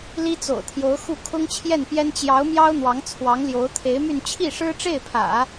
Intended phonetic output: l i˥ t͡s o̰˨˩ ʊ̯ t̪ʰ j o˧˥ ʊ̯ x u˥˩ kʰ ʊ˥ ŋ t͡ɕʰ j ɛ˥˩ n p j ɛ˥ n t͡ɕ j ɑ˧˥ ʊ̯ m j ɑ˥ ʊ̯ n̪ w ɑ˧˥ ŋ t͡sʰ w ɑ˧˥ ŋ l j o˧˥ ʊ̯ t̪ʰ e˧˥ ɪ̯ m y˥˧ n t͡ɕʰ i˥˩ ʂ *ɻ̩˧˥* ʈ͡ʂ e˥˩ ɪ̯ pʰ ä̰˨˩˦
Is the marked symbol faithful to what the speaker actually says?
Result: no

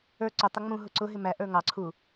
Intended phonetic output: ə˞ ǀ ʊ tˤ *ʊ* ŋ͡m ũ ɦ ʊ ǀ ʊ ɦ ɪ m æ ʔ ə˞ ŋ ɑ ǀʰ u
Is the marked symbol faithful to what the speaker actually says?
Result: yes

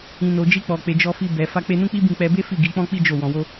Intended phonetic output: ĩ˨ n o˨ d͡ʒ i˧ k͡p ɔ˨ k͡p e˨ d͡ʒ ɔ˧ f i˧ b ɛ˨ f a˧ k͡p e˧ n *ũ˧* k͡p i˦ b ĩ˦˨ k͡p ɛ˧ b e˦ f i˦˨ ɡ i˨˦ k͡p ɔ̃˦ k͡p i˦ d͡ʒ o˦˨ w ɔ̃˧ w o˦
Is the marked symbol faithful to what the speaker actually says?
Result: no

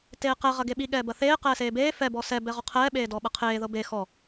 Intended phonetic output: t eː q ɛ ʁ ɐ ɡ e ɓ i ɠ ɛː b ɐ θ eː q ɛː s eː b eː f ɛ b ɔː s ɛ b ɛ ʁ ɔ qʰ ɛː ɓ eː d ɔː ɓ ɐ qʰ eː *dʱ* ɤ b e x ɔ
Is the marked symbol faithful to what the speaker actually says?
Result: no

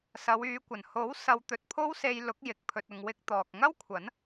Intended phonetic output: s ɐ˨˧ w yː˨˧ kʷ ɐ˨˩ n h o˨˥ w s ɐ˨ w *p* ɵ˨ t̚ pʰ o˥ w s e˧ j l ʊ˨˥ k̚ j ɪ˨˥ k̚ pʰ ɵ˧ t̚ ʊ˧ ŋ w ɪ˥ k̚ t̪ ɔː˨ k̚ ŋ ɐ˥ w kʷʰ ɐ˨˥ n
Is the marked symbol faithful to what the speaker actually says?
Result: no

